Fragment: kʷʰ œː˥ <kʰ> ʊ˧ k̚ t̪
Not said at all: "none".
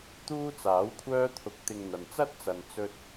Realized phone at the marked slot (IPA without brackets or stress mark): t̪ʰ